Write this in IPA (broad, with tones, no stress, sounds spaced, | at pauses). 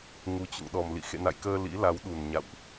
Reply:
ŋ u˨˩ t͡ɕ ṵ˧˨ ŋ ɗ ɔ˨˩ m l ḭ˧˨ x ḛ˧˨ n a̰˧˨ j k əː˧ l ḭ˧˥ l a˨˦ w ɗ u˨˩ n ɲ a̰˧˨ w ʔ